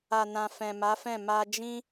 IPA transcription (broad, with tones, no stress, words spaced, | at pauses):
a˨nã˨ fɛ̃˨ma˨˦fɛ̃˦˨ ma˧ d͡ʒĩ˦